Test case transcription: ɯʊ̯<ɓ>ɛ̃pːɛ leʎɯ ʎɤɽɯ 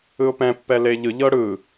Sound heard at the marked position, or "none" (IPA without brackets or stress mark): p